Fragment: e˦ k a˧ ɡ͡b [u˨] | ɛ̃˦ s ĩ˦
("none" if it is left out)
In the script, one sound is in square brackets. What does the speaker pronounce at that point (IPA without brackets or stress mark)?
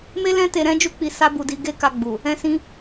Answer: u˨